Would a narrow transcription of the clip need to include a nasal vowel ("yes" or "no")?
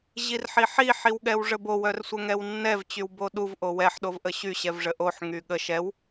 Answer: no